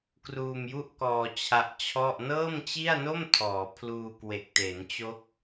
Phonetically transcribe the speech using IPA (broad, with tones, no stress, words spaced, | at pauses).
kruː˧mju˥˩ʔkɔː˧ t͡ɕʰa˦˥ʔt͡ɕʰɔ˥˩ʔ nɤː˥˩mt͡ɕi˥˩a̯no˥˩m tʰɔː˩˦ pʰluː˧kwe˨˩k̚te˩˦nt͡ɕo˦˥k̚